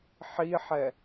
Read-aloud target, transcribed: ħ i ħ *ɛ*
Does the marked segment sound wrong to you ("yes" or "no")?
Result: no